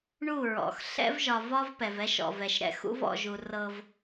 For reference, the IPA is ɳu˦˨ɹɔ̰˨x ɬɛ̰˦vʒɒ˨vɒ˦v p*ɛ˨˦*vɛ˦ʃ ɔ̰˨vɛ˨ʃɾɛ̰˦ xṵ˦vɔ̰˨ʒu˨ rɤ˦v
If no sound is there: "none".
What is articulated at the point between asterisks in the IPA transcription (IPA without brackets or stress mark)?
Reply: ɛ˨